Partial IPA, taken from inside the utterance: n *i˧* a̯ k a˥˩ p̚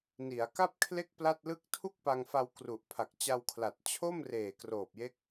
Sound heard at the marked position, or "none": i˩˦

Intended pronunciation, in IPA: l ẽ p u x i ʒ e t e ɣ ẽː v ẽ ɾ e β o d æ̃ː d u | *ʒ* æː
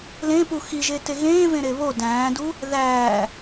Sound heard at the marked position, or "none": ð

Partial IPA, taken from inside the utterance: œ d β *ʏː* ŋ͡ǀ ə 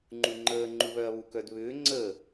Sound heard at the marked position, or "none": ʏː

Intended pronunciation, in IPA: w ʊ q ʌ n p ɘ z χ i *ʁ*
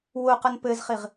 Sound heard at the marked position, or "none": ʁ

